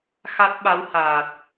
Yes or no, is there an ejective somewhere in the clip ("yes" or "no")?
no